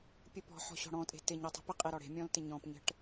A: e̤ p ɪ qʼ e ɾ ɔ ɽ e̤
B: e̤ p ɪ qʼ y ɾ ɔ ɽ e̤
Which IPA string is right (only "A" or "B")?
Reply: A